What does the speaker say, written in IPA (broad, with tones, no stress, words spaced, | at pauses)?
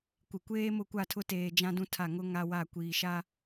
kʷɪ˨kʷeː˦ mʊ˦kʷa˦˨tʰʊ˦teː˨ d͡ʒã˦dũ˦tʰa˦˨ ŋʊ˦ ŋa˦wa˦˨ kʷiː˨ʃa˦